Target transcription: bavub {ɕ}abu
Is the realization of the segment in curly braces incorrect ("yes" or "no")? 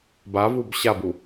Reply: no